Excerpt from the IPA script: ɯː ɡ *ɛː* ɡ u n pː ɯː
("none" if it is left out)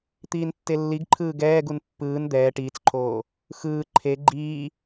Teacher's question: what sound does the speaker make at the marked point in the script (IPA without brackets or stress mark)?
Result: ɛː